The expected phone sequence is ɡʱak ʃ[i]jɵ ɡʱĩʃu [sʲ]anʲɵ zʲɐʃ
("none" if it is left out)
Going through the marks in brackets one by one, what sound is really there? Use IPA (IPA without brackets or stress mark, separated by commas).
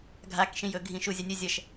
ĩ, zʲ